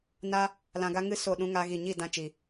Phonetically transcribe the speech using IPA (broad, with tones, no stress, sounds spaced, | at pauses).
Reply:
n a˦ | l ã˧ ɡ a˦ ŋ ɨ˦ s o˦˨ ɗ ũ˦ ŋ a˦ ɣ i˦˨ ɲ i˦˨ d ã˧ t͡ʃ i˨